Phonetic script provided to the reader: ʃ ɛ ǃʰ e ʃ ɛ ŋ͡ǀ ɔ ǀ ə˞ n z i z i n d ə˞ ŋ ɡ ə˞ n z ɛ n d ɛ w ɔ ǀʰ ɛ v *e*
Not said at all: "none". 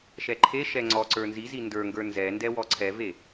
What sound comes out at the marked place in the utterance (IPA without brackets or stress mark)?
e